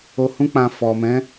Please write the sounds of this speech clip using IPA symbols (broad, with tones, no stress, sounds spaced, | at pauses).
o˧ h ũ˦ k͡p ã˧ f ɔ˨ m ɛ̃˨˦